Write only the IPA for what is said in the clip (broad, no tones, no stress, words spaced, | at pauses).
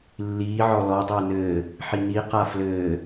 lːiːʕɔ lɔdˤɘː nɘː | ħini qaflɘː